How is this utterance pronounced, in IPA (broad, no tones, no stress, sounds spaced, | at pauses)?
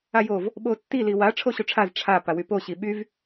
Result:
a j o v | ɓ o tː i l i w a ʈ͡ʂʰ o ɕ o ʈ͡ʂʰ a z ʈ͡ʂʰ a p a w y p o ɕ i ɓ y v